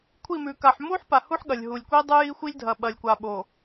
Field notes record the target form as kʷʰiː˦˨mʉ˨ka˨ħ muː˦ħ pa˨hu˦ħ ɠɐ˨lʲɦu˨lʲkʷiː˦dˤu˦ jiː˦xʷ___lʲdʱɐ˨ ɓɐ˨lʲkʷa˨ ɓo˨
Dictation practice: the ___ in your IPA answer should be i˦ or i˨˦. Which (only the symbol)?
i˦